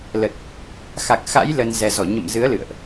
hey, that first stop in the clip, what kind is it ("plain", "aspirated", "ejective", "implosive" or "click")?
plain